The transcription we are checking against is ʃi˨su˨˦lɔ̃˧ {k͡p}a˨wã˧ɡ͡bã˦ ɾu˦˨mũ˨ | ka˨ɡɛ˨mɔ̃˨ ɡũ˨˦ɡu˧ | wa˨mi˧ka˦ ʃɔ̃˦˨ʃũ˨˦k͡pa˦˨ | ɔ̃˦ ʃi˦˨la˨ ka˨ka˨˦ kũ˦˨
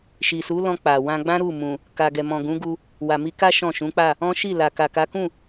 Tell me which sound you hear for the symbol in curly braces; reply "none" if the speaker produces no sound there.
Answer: k͡p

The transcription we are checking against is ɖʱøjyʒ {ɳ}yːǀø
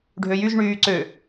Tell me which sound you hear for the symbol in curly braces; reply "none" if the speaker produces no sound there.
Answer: ɳ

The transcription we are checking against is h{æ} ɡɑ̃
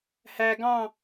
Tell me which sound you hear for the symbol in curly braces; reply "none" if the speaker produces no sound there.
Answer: æ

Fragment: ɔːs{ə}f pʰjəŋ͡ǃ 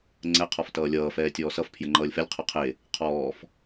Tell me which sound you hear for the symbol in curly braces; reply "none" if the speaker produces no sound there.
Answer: ʌ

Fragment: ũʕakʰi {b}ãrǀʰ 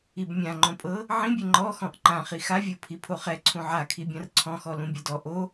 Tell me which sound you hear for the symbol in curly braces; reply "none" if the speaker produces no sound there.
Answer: bʲ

